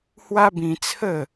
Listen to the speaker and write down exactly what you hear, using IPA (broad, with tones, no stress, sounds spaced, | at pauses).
h w a˦ b ĩ˧ t͡sʰ ə˥˧